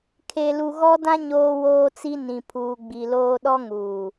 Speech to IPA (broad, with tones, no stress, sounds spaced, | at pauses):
kʰ e˨ l u˨ ɣ ɔ˦ d ã˦ ɲ oː˦ w oː˦ t͡s i˦ n ĩ˨ pʰ uː˨ ɡ͡b i˨ l oː˦ ɗ ɔ˦ ŋ uː˨